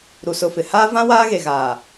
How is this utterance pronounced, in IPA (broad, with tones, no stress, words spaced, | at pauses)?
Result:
ɾu˨sʊ˨ fɪ˨haː˦ vã˦ waː˦ɣe˨ɣaː˨